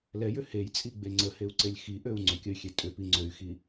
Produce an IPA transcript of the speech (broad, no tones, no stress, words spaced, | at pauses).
lɛjʏ hejt͡sʼiɡ͡be ŋ͡ǀəheu̯ǀelʲ xiʔøu̯ ŋ͡ǀʏkʲəy̯xʲe tʼʏpi ŋ͡ǀøy̯xi